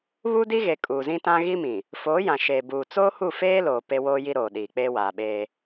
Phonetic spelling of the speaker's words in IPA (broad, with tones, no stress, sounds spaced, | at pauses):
β u˦ d i˦ ɣ e˨ kʼ uː˨ z ĩ˦ t ã˦ ɣ i˦ m ĩ˨ | f oː˨˦ j ã˨ ʃ eː˨ b uː˨ t͡s oː˦ h u˦˨ f eː˦ l oː˨ p e˦ w oː˦ j i˦ ɾ oː˨ ɗ iː˨ k͡p eː˦ w aː˨ ɓ eː˦